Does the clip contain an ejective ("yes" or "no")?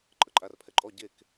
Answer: yes